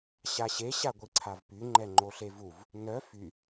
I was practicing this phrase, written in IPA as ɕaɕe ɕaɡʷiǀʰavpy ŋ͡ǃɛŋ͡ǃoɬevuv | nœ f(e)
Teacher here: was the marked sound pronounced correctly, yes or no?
no